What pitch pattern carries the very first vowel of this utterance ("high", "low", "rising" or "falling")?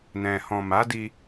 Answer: low